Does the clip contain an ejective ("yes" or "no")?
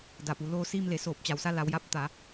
no